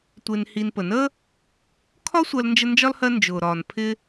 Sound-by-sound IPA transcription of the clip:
tʷ ɪː˨ n h i˨ n p ə˩ n əː˥ | kʰ ɒ˦ sʷ ɜ˦ l n d͡ʒ ə˦ n d͡ʒ ɒ˥ l h ɜ˦ n d͡ʒ ʊː˩ ɾ ɒː˩ n pʰ ɪː˦

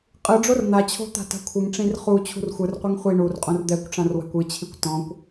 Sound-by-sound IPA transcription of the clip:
qʼ ɯ ɖ͡ʐ o r n̪ a t͡ɕʰ o̤ t̪ a̤ t a̤ kʷʰ ɯ ŋ ʈ͡ʂ ĩ r χ u t͡ɕʰ ṳ r xʷ ɯ r qʷ i ŋ χʷ i ɳ u r qʼ õ r d̪ ɛ kʷ ʈ͡ʂ ã r w a̤ kʷ ɯ t͡ɕʰ i kʷ t ɔ̃ kʷ

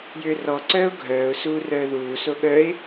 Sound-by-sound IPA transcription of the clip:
j ʏː r ɔ ǀ œː ʊ̯ ɡʱ œː ʊ̯ s uː r œː ð uː s o ɠ œ ɪ̯

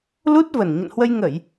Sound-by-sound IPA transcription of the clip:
l u˦˥ t̚ v ə˨˩ n ɲ ə̰˧˨ n h w ə˧ j ŋ ə˧˩˨ j

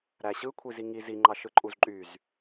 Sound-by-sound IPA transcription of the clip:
ɾ æ ɕ ɯ kʷʰ i z i ŋ i z i ŋ͡ǃ ɑ ʃ ɯ ǃʼ u z ǃʼ y z

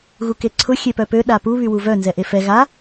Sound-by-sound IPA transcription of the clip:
ɣ u k e ǀʰ ʊ xʲ e p œ p ø ɗ a p u β y w u v œ n z ɛ ʔ e f ɛ ɣ a

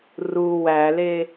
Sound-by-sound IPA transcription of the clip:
r u w æ l e

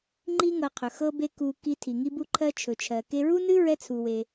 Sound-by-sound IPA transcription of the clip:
ŋ͡ǃ i˥ ŋ ɤ˧ qʰ ɵ˩ x ɤ˥ b e˥ k u˧ k i˧ tʰ i˩ ŋ i˥ b u˥ ǃʰ ɜ˥ t͡ʃʰ ɵ˩ t͡ʃʰ ɜ˩ k e˧ ɹ u˥ n ɨ˥ ɹ ɛ˥ t͡sʰ u˩ w e˩

